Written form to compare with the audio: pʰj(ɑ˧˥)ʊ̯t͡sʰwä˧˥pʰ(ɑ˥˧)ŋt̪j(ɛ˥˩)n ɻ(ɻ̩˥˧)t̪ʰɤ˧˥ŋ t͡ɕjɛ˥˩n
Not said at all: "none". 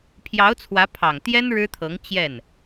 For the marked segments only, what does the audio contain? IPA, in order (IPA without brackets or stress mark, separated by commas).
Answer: ɑ˧˥, ɑ˨˩, ɛ˥, ɻ̩˥